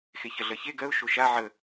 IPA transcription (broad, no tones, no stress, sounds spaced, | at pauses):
x e ç ɜ ɮ ɜ ç e ɡ ɜ ʊ̯ ʃ o ʃ a ʕ ə